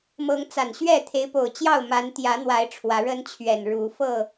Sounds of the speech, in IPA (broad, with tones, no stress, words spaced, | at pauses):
mɤ˨˦ŋt͡sa˨˩nɕɥɛ˥˨ t̪ʰe˨˦ɪ̯po˨˩ʊ̯t͡ɕjɑ˥˨ʊ̯ma˨˦n t̪jä˨˦n̪wa˨˦ɪ̯ ʈ͡ʂʰwä˨˦ɻə˦nt͡ɕʰɥɛ˨˩n ɻu˨˦ fɤ˥˨